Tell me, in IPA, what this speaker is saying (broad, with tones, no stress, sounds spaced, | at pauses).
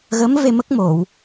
ɣ ə˧˥ m v e˧ m ə˦˥ k̚ m o˨˩˨ w